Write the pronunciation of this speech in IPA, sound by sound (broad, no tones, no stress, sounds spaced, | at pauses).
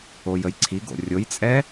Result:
o j ə j ǀʰ i ɡ o̰ rʲ o j t͡sʼ ɛ